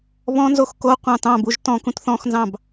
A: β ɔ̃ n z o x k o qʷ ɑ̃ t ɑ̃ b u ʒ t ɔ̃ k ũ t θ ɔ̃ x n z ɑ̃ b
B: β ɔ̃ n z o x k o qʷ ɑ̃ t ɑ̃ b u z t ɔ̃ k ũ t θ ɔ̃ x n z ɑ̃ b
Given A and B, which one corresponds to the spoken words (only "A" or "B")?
A